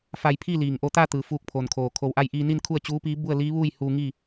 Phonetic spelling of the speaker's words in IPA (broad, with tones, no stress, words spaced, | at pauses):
fa˧jpʰi˥˨liː˩ŋ ʔo˧t̪a˥˨ t̪ɯː˩ fuː˧k̚pʰo˩nkʰoː˩ kʰo˩˧wʔa˧jʔiː˧ni˥˨n kʰu˥˨ə̯t͡ɕuː˧˥piː˧˥ bu˥˨ə̯liː˧˥ʋuː˥˨jhuː˧ ŋiː˥˨